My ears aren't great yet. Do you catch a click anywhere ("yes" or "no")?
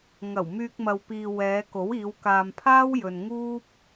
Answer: no